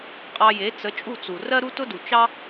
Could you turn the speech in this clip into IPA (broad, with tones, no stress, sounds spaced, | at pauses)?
qʼ ɑ˧ j e˩˥ t͡s ə˩˥ t͡ʃʼ u˥˩ t͡s u˩ r ɜ˥ ɾ u˥ t ʊ˥ d u˩ t͡ʃ ɑ˥